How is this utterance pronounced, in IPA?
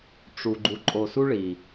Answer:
ʈ͡ʂ u˨ ɡ͡ǃ u˨ ǃʼ o˨ s u˦ ɭ i˨

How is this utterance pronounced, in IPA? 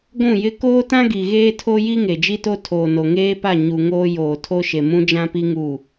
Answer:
ɡʷ ũ˦˨ j ɪ˦ k oː˦ t ã˦ ɡ i˨ ɣ eː˦ tʰ o˦ j i˦ ŋ e˨ d͡ʒ i˦ t o˦ tʰ oː˨ n o˨ ŋ eː˦ p a˦˨ ɲ u˨ ŋ oː˦ j oː˨ tʰ o˦ ʃ e˨ m ũ˦ d͡ʒ ã˦ p i˦ ŋ u˦˨

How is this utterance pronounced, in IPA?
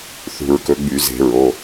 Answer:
θ ṳ˧˩˧ ɹ k ɵ˨˦ ɡ͡b y˧˩˧ z e̤˧˩˧ ɹ o˩˧˩

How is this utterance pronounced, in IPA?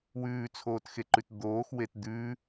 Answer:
w ʉː t͡sʰ oː t x e ǃ ʉ t d̪ oː x w e t d̪ ʉ

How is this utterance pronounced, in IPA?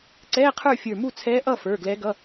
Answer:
ǀ ɛː˧˥˧ qʰ ə˞˥˨ fʲ ə˞˧˩ m u˥˨ t͡sʰ ɛː˧˥ ʔ ʌ˥˨ f ə˞˩˧˩ ɡ l ɛ˧˥ ɡ ʌ˧˥˧

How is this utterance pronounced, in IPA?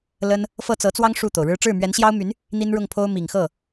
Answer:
l ə˥ n | f ɤ˥˩ t͡s ɤ˧˥ t͡s w ɑ˥ ŋ ʂ u˥˩ t̪ o˩ ʊ̯ ɻ ɻ̩˥ ʈ͡ʂ ɻ̩˥˩ m ɥ ɛ˧˥ n ɕ j ɑ˥ ʊ̯ m y˧˥ n | n̪ i˥ n ɻ ʊ˥˩ ŋ pʰ o˥ ʊ̯ m i˨˩ ŋ x ɤ˥˩

